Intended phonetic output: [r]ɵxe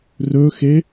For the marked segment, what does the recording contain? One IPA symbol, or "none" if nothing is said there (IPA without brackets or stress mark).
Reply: r